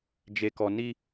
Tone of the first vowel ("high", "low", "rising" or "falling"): low